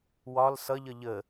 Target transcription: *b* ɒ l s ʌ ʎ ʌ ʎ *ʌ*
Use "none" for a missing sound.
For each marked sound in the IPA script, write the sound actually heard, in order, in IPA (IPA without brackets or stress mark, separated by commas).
w, ə